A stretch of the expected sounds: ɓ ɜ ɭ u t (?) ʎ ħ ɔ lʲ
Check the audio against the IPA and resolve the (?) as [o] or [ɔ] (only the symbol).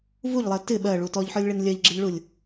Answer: ɔ